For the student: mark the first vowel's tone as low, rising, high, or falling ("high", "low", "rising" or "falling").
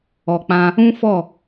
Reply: low